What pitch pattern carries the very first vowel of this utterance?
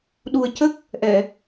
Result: low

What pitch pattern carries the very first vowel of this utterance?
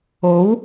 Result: rising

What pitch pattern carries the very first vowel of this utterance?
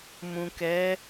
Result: low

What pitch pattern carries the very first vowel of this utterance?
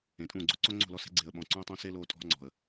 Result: low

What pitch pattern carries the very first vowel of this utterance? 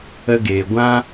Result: high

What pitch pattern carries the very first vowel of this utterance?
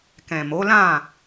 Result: low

